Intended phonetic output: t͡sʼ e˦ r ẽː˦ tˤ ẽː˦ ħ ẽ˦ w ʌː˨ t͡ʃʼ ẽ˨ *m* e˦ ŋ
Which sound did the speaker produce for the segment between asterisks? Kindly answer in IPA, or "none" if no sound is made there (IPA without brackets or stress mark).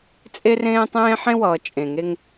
ŋ